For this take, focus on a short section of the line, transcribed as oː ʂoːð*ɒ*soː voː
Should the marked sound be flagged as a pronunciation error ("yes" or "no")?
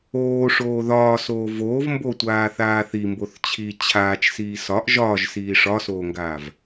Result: yes